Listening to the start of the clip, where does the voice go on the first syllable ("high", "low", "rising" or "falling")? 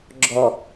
low